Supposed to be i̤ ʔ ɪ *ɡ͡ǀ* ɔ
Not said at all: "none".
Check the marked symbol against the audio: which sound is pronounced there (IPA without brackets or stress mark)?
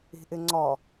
ŋ͡ǀ